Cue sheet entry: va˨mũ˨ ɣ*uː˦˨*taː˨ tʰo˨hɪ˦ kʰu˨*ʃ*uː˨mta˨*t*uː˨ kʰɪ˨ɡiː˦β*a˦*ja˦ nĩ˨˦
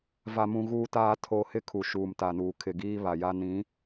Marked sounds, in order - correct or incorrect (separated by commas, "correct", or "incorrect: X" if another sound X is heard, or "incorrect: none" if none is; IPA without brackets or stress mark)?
incorrect: uː˨, correct, incorrect: n, incorrect: a˨